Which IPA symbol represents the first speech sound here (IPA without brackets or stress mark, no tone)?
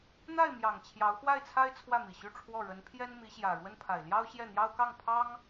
n̪